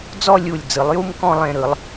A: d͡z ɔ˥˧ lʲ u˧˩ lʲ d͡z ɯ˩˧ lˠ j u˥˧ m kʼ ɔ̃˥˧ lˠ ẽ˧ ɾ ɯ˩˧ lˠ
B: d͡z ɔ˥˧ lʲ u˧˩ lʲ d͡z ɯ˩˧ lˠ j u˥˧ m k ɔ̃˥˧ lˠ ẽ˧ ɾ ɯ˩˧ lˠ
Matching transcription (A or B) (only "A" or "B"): B